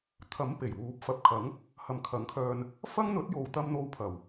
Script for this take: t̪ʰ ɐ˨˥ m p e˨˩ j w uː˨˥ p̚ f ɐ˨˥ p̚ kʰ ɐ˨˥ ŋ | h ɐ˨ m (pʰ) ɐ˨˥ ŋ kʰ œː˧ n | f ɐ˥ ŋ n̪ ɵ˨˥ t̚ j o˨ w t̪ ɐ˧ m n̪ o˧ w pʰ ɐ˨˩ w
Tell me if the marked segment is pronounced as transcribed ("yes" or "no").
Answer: no